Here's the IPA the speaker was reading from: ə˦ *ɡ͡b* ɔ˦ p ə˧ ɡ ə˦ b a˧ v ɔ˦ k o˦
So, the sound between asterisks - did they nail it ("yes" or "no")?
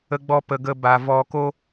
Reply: yes